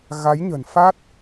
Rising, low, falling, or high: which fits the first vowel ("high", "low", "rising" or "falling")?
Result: rising